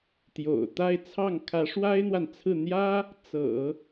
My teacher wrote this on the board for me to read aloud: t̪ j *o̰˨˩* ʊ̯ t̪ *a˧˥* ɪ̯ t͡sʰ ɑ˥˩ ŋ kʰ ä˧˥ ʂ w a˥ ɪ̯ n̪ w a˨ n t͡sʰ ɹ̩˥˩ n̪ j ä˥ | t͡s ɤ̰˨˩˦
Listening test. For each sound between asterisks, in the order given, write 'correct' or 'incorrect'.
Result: correct, incorrect: a˥˧

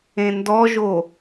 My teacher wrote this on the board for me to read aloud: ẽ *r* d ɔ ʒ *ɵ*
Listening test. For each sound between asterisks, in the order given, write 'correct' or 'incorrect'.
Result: incorrect: n, incorrect: o

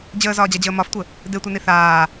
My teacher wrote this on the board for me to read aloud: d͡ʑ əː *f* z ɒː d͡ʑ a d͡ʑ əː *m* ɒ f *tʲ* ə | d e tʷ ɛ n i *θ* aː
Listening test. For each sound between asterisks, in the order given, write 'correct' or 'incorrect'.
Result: incorrect: none, correct, incorrect: tʷ, correct

